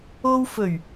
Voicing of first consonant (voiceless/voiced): voiced